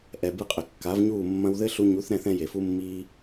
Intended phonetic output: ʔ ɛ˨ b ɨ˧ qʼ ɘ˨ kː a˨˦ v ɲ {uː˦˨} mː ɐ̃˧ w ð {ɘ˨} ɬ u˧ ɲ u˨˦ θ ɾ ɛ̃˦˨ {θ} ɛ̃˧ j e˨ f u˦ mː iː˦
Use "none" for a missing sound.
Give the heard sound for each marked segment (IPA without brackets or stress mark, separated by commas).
uː˦˨, ɘ˦, θ